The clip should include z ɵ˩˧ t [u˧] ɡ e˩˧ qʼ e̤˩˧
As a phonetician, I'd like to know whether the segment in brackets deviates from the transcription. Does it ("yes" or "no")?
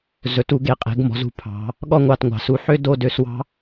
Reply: no